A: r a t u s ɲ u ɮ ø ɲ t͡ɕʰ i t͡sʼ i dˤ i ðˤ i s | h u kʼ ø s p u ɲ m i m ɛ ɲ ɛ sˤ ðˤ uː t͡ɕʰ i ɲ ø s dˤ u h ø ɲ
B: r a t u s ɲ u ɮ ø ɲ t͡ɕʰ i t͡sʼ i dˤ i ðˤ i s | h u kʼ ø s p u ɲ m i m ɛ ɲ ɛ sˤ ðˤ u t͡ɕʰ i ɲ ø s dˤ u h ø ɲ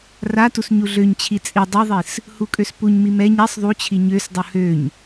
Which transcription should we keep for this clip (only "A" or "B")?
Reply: B